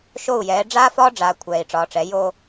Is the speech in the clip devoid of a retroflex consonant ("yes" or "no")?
no